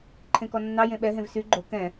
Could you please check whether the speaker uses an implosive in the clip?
yes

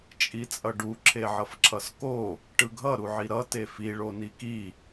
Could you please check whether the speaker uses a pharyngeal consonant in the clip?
yes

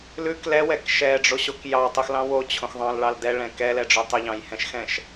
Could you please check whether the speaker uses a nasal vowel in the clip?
yes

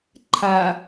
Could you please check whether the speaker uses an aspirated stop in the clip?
yes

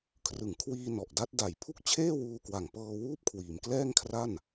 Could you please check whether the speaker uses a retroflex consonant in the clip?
no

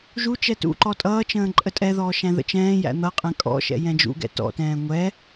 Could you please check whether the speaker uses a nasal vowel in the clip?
yes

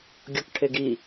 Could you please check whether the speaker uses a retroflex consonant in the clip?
yes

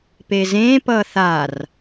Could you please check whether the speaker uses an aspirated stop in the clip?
no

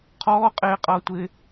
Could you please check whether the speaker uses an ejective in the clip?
yes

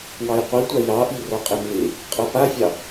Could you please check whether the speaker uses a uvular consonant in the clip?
yes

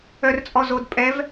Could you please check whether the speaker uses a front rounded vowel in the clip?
yes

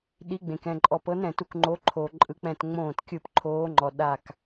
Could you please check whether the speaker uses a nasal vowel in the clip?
yes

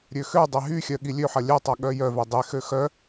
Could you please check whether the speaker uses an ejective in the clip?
no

